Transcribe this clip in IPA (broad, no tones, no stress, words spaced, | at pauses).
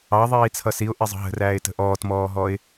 ɑ ðˤiːt͡sʰʌsiʊ̯ ʔizˤə̤ɦə̤ræːɪ̯ tə̤ʔɔːtmɔːɦɔɪ̯